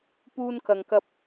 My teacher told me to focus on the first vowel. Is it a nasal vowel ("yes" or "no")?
no